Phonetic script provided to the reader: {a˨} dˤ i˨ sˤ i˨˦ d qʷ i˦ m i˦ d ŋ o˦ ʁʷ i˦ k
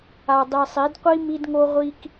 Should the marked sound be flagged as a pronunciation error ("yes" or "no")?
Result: no